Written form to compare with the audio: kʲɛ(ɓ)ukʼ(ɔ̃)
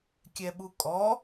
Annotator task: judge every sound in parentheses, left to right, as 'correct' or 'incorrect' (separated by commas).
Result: correct, incorrect